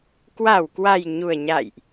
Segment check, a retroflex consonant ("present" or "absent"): absent